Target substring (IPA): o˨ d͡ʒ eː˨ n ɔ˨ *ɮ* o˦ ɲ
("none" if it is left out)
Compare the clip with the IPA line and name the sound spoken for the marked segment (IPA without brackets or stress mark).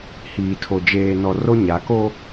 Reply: r